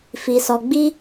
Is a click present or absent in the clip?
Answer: absent